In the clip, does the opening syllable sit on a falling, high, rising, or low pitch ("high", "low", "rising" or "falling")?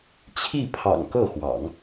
falling